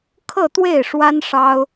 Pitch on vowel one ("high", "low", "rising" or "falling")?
falling